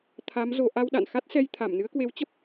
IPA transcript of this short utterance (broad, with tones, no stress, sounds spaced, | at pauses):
t̪ʰ a˨˦ m z o˧ ʔ a˧ w ɗ a̰˧˨ n x a˦˥ t̚ s ɛ˧ j t̪ʰ a˧˩ m n ɨ˨˦ ə̯ k w e˨˦ w t͡ɕ ə˦˥ p̚